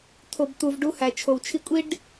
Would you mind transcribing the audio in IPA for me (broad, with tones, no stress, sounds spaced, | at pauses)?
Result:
t̪ʰ o˩ b t̪ u˩ v ɖ u˧ h æ˩ t͡ʃʰ o˩ w t͡ʃʰ i˧ kʷʼ i˥ ɖ